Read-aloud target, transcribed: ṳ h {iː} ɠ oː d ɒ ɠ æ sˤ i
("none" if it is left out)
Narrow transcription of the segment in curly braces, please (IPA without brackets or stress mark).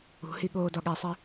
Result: i